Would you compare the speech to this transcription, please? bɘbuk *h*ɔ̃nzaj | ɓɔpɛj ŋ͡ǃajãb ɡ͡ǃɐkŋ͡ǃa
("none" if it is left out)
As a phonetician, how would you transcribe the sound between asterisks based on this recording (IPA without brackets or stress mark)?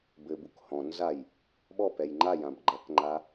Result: h